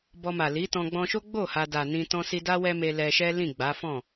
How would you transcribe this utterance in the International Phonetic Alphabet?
b ɔ˧ m a˨ l i˨˦ t ɔ̃˧ ɡ͡b ɔ̃˧ ʃ o˦ ɡ͡b o˦˨ h a˧ d a˨ n ĩ˧ t ɔ̃˧ s i˧ d a˦ w ɛ˦ m e˧ l ɛ˧ ʃ ɛ˦ l ĩ˦˨ ɡ͡b a˨˦ f ɔ̃˦˨

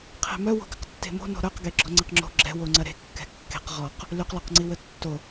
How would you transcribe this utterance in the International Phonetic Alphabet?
qʰ e̤ m œ w o̤ ɡ ɪ q tː e̤ m o̤ n o̤ ɾ œ q ɡ e ɡ͡ǁ ɔ ŋ͡ǀ e q ŋ͡ǁ o̤ ɡ͡ǁ ɛ̤ w o ŋ͡ǀ ɐ ɾ e̤ kː ɛ̤ kː e̤ q ʁ ɔ q | l y q l ɔ q ŋ͡ǀ i w ə tː o

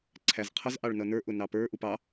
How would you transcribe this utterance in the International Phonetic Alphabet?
ǀʰ æ z qʰ ʌ z ʔ ɑ ɭ n ʌ n ə˞ ʔ ʊ n ɑ p ə˞ ʔ u p ɑ

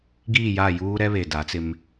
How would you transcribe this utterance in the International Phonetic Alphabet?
ɡ iː˦˨ j a˦˨ j uː˦ ɾ ɛ˦ β e˨ d a˨˦ t͡s ɪ˦ m

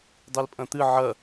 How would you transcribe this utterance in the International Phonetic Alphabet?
dˤ i l pʼ ɐ̃ t̪ ɨ ʕ ɐ

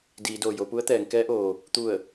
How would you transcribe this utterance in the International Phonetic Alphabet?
d iː˩˧ d oː˩ j o˩˧ p u˧˥ ə̯ t̪ ɛː˩˧ ŋ k ɛː˧˥ ʔ oː˩ | t̪ u˧˩ ə̯

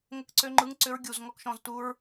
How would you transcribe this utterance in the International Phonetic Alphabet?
ŋ ə˦ k ǀ ø˦ ŋ͡ǃ ɯ˦ ŋ ǀ ʏ˦ ɹ ɡʲ u˧ z ŋ ɔ˦ k ʃ ɔ̃˧ z t u˦ ɹ

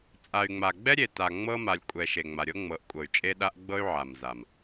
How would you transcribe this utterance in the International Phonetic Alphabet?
t͡sʼ a˨ y̯ ŋ͡m a˨ ɡ͡b ɛ˦ ɾʲ e˨ t a˨ ŋ͡m ɤ˦ m a˨ lʲ kʷʼ ɛ˨ ʃ e˨ ŋ͡m a˨ ɾʲ ɤ˦ ŋ͡m ɤ˨˦ ʔ kʷʼ ɤ˨ y̯ t͡ʃʼ e˦ ɗ a˦ ʔ ɡ͡b ɤ˦ y̯ ʕ a˨ m z a˨ m

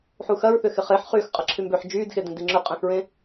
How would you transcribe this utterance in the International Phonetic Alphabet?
ħ u x ɐ ɹ θ ʏ x ɪ χ e ħ χ yː x qʼ ɐ ǁʰ y m b ø ħ d͡ʒ yː d x e d ẽ d i ŋ͡ǁ ʏ qʼ ẽ x ɹ ẽ

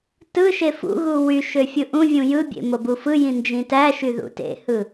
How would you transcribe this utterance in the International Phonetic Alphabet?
t ɯ ʃ e f ṵ ɣ u w y ʃ ø fʲ ɯ ʔ ũ vʲ ũ j ɯ bʲ ḛ m o b u f ɯ j ĩ n d͡ʒ ĩ t æ ʃ y ð ṵ t ḛ h ɯ

